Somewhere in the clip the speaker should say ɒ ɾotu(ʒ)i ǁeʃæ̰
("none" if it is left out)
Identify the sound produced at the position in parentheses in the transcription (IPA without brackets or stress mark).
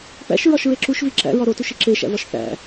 ʃ